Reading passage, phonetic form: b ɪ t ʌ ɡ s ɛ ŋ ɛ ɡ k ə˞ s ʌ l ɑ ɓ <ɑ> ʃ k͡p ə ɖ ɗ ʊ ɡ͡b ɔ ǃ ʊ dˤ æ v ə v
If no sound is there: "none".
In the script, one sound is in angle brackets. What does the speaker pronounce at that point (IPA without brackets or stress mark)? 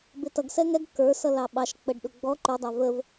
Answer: ɑ